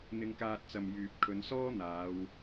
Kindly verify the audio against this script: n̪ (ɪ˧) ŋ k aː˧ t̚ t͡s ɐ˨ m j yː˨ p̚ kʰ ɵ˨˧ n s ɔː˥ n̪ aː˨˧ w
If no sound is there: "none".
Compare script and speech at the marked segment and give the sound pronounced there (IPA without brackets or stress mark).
ɪ˧